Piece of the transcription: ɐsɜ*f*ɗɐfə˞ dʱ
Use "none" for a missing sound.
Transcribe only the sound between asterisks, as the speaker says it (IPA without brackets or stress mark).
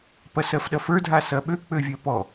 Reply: f